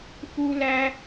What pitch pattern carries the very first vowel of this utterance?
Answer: high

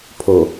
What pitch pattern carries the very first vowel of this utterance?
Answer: low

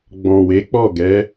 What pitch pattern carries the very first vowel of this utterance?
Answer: low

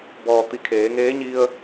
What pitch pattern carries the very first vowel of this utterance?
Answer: low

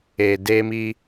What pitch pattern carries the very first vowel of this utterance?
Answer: low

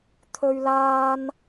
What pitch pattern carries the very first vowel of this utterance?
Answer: high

